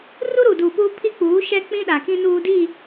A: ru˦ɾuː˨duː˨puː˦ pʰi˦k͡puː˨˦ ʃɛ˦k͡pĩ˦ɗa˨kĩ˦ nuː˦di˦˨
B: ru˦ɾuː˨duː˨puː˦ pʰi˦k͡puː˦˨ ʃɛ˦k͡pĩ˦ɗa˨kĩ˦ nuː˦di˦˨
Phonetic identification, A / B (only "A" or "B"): A